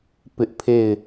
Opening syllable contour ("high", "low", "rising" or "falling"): high